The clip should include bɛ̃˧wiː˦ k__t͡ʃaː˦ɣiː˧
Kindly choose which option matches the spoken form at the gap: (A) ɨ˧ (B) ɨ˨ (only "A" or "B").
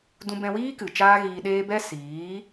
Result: B